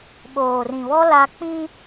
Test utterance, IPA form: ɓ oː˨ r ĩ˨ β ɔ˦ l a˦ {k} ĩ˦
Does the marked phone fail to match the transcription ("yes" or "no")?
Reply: yes